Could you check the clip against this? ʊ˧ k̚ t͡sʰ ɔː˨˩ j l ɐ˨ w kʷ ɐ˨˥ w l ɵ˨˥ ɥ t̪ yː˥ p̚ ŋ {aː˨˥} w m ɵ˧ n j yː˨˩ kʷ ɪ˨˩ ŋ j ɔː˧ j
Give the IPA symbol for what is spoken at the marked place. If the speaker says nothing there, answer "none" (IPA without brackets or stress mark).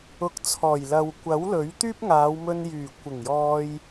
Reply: aː˨˧